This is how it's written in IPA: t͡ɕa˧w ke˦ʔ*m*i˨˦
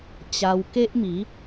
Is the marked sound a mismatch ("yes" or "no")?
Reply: no